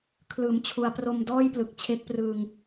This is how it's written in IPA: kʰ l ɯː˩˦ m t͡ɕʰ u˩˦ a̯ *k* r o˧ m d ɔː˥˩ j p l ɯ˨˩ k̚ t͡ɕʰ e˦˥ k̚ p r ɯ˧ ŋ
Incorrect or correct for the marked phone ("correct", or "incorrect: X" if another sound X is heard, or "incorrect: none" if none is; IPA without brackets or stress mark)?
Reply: incorrect: p